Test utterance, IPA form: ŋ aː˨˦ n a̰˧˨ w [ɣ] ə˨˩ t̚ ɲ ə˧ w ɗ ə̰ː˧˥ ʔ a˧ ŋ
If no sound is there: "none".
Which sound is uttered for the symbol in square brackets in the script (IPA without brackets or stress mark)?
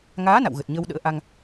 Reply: ɣ